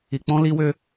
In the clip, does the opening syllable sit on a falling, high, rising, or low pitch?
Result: low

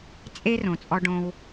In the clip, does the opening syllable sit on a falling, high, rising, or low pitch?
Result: high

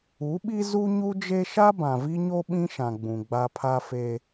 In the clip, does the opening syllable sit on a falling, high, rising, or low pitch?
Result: rising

